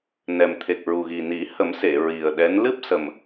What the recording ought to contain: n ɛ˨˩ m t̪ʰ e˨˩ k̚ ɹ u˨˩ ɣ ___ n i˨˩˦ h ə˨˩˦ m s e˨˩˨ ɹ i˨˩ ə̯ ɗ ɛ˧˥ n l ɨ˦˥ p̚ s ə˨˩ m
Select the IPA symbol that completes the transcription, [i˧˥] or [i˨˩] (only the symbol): i˨˩